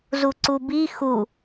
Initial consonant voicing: voiced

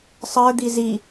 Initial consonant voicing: voiceless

